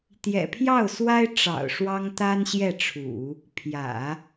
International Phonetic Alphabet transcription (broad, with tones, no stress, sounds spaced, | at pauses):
t̪ j ɛ̰˨˩ pʰ j ɑ˥˩ ʊ̯ s w a˥ ɪ̯ ʈ͡ʂ ɑ̰˨˩ ʊ̯ ʂ w ɑ˥ ŋ t̪ a˥ n ɕ j ɛ˥˩ ʈ͡ʂʰ ṵ˨˩˦ | pʰ j ä̰˨˩˦